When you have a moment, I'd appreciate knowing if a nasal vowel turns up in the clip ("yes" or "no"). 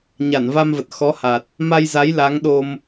no